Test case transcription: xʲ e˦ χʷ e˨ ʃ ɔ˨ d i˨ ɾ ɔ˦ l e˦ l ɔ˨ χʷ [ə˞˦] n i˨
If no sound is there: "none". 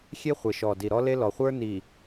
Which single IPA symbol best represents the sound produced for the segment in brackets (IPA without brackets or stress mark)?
ə˞˦